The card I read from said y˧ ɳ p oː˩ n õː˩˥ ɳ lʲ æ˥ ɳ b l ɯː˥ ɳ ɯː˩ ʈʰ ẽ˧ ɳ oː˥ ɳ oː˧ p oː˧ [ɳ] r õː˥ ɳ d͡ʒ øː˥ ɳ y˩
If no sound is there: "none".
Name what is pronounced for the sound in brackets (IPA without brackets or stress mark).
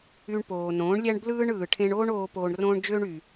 ɳ